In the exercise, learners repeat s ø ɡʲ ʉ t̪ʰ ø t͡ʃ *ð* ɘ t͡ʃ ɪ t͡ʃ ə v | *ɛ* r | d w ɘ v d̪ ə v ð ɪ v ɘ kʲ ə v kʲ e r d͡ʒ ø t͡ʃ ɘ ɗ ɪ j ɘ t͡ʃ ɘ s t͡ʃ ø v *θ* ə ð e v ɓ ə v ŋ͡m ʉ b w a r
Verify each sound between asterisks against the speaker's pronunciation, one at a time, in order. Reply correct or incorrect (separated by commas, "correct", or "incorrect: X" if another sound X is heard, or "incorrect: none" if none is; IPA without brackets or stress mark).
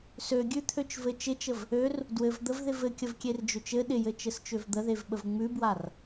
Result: incorrect: v, incorrect: ø, incorrect: d̪